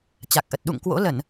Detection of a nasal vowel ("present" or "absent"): absent